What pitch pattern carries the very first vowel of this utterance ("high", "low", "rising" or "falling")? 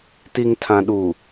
low